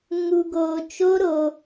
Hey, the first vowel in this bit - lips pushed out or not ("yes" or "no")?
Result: yes